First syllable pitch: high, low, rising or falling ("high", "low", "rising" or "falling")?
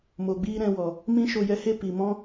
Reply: low